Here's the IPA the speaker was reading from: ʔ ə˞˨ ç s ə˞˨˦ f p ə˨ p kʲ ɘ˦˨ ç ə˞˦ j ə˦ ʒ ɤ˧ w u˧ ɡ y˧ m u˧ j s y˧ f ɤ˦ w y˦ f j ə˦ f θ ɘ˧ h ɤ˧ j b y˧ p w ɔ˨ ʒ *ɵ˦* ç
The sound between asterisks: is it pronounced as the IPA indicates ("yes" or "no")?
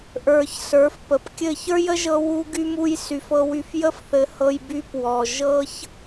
no